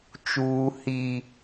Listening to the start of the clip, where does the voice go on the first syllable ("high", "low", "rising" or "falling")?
high